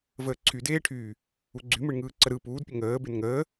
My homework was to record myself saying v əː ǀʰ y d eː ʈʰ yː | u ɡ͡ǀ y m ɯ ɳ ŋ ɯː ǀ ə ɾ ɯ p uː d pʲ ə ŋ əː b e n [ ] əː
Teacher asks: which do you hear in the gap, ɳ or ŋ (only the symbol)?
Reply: ŋ